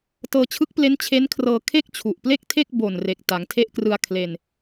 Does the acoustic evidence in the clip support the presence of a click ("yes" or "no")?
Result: no